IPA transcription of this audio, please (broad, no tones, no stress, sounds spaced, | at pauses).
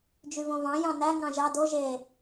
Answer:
d͡ʒ y v õ v ɑ̃ j ɑ̃ n æ ŋ ɑ̃ ʒ ɑ d o ʒ e